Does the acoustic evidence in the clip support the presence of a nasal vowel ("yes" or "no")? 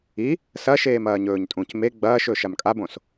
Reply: yes